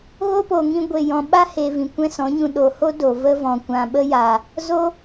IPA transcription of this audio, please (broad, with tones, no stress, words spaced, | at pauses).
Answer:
ɣo˦po˨ŋĩ˧ ɡʷe˨jɔ̃˨ ɓa˦he˨ vĩ˨kʷɛ̃˦sɔ̃˨˦ɲũ˧ ɗo˨ho˦ do˨ və˧vɔ̃˨ kʷã˨ɓə˧ja˨ | zo˦